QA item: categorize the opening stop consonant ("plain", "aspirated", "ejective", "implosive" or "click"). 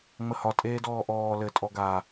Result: ejective